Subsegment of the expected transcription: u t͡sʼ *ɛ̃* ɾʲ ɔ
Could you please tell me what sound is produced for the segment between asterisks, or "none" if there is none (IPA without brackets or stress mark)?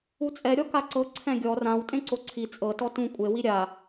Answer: ɛ